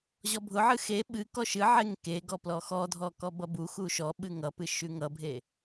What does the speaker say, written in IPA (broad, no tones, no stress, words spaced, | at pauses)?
ʑɔbʱʊʕɨ xe ɓɨ kɔʃɨʕeŋ keɡɔplɔ xɔdʱɔkɔ bʌbu xuʃɔ ɓɨŋʌpɨ ʃʉŋʌbʱe